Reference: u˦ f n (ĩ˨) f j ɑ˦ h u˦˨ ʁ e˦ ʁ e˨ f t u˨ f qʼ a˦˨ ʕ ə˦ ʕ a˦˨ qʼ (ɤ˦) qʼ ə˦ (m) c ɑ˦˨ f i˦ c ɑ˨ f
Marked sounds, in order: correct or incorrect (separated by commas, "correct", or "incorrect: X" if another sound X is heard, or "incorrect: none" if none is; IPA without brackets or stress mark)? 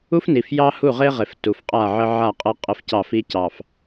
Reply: incorrect: i˨, correct, incorrect: f